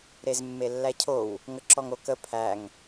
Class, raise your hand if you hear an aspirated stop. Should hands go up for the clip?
yes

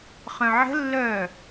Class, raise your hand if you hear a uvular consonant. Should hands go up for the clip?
yes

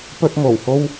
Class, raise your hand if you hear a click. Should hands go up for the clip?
no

